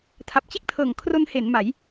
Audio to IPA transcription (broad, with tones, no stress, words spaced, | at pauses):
tʰa˨˩p̚t͡ɕe˥˩k̚tʰɤː˨˩ŋkʰro˧n he˩˦n ma˩˦j